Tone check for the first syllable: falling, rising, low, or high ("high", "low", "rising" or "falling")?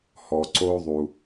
low